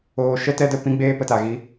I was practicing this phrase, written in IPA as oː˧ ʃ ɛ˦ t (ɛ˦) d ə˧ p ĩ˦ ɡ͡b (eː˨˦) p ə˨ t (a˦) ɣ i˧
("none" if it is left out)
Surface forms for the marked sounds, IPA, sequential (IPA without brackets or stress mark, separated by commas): ɛ˦, eː˦, a˨